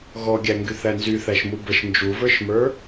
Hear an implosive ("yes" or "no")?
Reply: no